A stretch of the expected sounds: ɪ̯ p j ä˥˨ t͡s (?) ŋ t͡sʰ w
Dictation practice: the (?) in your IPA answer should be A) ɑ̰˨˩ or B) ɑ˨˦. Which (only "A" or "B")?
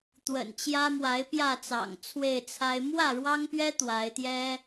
A